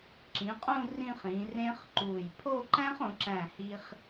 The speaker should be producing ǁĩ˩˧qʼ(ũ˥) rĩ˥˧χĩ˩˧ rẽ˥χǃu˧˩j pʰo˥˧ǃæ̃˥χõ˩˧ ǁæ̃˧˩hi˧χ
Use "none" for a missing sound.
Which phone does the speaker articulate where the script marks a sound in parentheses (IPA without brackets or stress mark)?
ũ˥˧